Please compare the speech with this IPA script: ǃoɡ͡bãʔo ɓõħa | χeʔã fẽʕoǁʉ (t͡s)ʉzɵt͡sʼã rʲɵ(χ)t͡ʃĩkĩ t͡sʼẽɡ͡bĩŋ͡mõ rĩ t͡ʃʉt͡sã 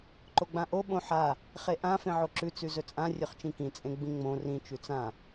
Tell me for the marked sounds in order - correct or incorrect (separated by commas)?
correct, correct